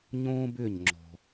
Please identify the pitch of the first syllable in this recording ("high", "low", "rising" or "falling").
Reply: high